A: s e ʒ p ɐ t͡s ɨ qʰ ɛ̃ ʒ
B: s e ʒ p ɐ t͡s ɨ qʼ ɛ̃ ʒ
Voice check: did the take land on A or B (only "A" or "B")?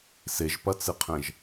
A